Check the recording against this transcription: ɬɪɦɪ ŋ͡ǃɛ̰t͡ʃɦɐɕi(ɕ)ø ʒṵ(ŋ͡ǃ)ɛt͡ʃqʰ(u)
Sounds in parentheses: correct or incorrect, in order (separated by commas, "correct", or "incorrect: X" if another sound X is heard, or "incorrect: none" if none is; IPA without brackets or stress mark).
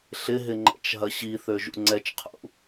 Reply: incorrect: θ, incorrect: ŋ͡ǀ, incorrect: ṵ